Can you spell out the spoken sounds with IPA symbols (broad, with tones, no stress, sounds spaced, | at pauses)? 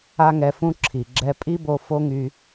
a˥ ŋ ɛ˧ f ũ˥ ǁʰ i˩ ɡ͡ǁ ɛ˧ pʼ i˥ b o˧ f o˥ ŋ y˧